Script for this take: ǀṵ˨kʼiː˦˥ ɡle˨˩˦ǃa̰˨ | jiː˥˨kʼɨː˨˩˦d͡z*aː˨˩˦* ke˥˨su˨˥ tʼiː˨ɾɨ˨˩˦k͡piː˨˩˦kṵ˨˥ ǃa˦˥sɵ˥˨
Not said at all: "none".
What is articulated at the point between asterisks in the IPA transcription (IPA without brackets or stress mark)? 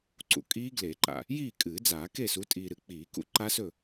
aː˨˩˦